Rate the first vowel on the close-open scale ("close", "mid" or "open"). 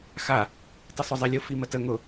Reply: open